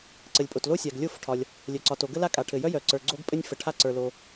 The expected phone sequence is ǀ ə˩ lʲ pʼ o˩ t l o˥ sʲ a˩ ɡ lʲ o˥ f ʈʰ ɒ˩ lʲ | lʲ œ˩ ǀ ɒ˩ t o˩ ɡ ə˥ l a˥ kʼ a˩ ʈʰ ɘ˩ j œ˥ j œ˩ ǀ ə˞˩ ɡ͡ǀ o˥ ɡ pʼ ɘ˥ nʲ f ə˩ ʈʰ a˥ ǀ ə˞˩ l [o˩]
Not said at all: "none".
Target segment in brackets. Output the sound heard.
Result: o˩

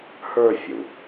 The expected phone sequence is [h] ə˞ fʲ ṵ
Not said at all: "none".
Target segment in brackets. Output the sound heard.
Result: h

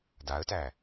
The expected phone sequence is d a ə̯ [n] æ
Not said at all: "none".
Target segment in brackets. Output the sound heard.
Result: t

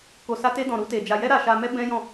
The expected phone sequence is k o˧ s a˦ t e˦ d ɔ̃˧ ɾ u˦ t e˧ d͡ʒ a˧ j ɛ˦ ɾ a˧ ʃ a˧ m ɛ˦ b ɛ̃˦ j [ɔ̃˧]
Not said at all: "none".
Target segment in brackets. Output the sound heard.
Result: ɔ̃˦˨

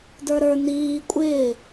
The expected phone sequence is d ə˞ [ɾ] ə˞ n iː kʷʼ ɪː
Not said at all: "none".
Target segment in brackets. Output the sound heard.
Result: ɾ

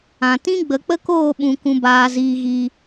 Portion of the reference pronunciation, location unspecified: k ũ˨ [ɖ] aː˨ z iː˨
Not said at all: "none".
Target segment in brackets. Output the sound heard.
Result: b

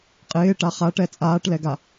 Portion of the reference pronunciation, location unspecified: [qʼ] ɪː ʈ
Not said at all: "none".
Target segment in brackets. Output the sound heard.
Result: qʼ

